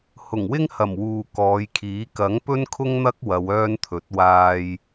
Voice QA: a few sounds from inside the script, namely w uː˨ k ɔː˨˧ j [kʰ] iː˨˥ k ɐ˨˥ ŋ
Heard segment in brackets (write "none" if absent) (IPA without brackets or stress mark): kʰ